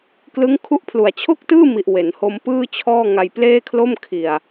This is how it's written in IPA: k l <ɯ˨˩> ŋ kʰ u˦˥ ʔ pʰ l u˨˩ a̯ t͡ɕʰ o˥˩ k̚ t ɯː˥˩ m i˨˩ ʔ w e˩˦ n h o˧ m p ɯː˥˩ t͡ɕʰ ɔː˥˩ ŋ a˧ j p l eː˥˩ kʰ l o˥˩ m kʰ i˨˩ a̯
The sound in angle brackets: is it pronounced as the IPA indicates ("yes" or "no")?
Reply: no